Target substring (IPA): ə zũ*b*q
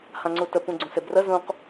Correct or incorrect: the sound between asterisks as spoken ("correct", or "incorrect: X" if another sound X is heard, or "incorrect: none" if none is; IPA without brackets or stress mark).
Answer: incorrect: none